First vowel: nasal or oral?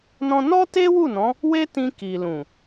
nasal